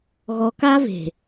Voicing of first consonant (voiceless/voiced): voiced